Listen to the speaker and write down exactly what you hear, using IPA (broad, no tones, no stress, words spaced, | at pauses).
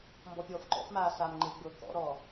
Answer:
mbɔpʲɔːfǃɔ̰fmaː saːmŋ͡ǃeɡ͡bɤː kɔ̰ɾɔː